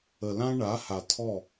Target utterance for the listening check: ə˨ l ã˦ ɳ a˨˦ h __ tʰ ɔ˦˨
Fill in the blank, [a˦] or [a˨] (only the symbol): a˨